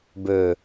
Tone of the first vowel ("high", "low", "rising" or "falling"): low